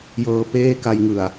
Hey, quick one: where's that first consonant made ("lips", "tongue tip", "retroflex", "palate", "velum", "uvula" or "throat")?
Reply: palate